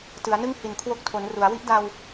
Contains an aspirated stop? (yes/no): yes